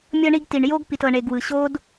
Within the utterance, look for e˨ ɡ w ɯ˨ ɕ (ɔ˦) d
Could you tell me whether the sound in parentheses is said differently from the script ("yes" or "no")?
yes